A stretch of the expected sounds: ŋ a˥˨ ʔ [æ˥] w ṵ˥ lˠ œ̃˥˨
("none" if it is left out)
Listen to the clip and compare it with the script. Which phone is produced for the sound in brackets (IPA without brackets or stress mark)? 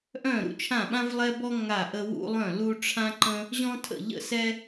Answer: ə˥